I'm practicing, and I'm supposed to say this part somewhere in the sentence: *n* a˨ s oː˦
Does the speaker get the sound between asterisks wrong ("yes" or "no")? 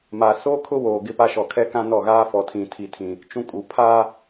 yes